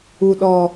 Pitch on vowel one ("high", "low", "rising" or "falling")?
low